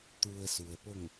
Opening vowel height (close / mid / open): close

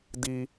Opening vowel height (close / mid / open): close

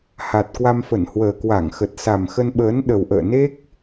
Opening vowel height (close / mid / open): open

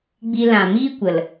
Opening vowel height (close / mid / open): close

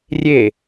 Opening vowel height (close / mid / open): mid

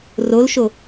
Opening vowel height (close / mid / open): mid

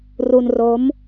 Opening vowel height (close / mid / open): close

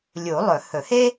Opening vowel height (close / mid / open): close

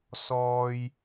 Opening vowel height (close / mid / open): mid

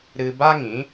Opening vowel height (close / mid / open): close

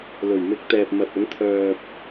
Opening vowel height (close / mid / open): mid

